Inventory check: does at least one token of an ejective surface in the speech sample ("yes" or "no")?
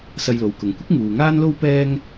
no